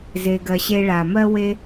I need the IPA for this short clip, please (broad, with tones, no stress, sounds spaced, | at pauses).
z e˧ ɡ ɜ˧ ɕ e˧ ɭ a˨ m ɜ˦ w e˦